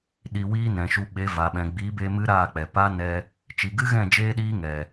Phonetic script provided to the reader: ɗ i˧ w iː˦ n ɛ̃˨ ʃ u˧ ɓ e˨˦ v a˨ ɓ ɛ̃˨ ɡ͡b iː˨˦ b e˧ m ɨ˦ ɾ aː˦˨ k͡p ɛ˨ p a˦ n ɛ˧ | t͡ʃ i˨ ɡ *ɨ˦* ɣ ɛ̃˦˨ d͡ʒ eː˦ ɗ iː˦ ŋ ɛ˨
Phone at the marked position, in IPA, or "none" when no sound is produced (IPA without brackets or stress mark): ɨ˦